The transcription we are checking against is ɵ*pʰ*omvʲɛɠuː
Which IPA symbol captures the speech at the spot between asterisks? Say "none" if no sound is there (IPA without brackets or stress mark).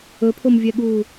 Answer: pʰ